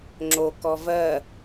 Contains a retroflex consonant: no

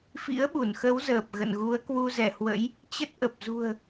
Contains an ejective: no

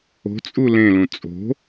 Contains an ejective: yes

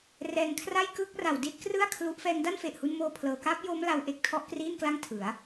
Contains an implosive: no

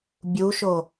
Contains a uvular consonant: no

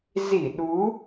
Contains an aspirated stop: no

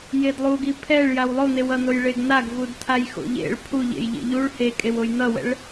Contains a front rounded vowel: no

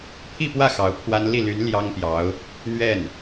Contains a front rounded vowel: yes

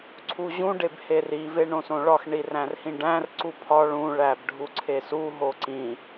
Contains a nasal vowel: yes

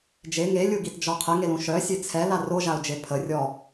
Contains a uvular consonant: yes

